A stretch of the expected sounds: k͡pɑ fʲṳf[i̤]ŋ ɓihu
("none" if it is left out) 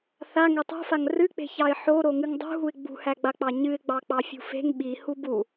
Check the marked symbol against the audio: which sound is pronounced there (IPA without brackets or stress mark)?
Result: e̤